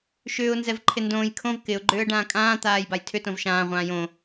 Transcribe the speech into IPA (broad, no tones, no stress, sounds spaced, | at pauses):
ʃ ʏː ʊ̯ n z ɛ v ǃʰ ɪ n d õː j kʰ õ v k ɪ ʊ̯ ɡ͡ǃ ʏː ə̯ ɖ ãː kʼ ãː t̪ aː j b a j tʰ ʏ t õ v ʃ ãː ʁʷ ãː j õ